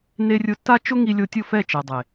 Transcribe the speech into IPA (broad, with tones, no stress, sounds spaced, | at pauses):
n e˧ rʲ ʊ˧ tː a˦ t͡ʃ ʊ˦ ŋ i˧ lʲ o˧ tʲ ʊ˦˨ f ɛ˦˨ t͡ʃ ɛ˨ dˤ e˨